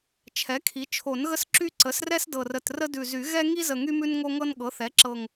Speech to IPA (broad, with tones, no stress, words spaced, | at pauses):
t͡ʃʰɛ˩˥kʰi˩˥ t͡ʃʰo˨˩˦nɣə˦s ǁy˦ ǀə˩˥srɛ˦s dɤ˨˩rə˨˩t rə˦dʉ˨˩zy˨˩˦ ɣɛ˦ ŋi˦zə˨˩ ŋy˦mʉ˦n ŋo˦ŋɤ˦nɠɤ˩˥θɛ˩˥ ǁɤ˨˩ŋ